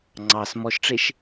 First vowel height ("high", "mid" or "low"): low